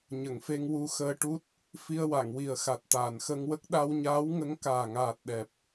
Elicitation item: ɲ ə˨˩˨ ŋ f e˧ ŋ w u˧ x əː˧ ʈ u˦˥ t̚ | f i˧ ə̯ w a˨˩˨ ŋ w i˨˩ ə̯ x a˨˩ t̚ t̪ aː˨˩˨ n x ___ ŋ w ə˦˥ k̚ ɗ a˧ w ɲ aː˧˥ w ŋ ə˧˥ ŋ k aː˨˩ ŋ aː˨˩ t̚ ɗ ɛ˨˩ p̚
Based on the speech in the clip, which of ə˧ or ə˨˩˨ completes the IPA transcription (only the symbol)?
ə˧